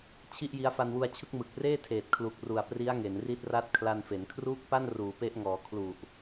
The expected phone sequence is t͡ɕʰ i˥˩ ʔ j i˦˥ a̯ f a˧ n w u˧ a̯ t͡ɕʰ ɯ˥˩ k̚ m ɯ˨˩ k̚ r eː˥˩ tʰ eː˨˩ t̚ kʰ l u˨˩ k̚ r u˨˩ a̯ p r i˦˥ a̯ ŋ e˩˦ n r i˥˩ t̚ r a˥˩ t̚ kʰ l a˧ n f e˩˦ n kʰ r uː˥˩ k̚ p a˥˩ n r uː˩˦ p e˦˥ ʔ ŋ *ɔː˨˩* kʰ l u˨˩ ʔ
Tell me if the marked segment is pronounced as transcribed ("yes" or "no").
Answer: no